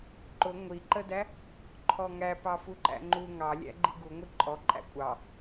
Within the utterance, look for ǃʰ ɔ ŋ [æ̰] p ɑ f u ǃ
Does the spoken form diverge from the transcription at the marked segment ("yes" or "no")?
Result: yes